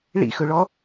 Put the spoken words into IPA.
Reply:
ɭ ḭ x ɵ ɭ ɔ

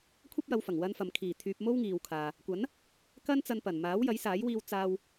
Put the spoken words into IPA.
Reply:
kʷʰ ɐ˥ p̚ j ɐ˨˧ w f ɐ˨˩ ŋ w ɐ˧ n f ɐ˨ m kʰ iː˨˩ t̪ʰ yː˧ p̚ m o˥ w ŋ iː˨ w kʰ aː˨ | kʷ ɐ˨˥ n | k ɐ˥ n t͡s ɐ˧ n p ɐ˨˩ n m aː˨˥ w j ɐ˨˥ j s aː˨˥ j w iː˧ w t͡s aː˧ w

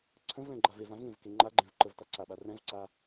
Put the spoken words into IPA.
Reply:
ǀʰ ə̃ v l ɛ̃ ɡ͡ǃ a v e v ã v ŋ ẽ v k e ŋ͡ǃ a ɡ͡ǃ ẽ v ǃ ə v t a ǀ a ɓ a r ɛ̃ v ǀ a

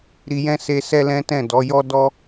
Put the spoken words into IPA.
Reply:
ɾ i˧ j ɛ̃˦ s e˧ s ɛ˦ l ɛ̃˦ t ɛ̃˦˨ d ɔ˨˦ j ɔ˦ d ɔ˦

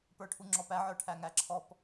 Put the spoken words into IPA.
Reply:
p ə˞ ʈʰ u ŋ͡ǁ ɔ p æ ʕ ə˞ ʈʰ æ ŋ æ ǁʰ ɔ p

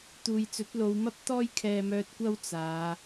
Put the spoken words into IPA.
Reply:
t̪ uː˨ j t͡s ɵ˨˥ t̚ l o˨˧ w m ɐ˥ p̚ t̪ ɔː˥ j kʰ ɛː˧ m œː˧ t̚ kʷ ɐ˥ w t͡s aː˨˧

